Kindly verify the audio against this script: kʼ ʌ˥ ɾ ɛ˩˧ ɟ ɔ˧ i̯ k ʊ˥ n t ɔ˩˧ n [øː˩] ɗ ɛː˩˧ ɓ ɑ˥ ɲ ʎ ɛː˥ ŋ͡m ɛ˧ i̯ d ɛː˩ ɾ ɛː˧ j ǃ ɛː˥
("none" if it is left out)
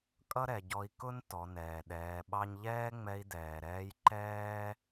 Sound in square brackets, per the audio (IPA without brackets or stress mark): ɛː˩